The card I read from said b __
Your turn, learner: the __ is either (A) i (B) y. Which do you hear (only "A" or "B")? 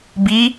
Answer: A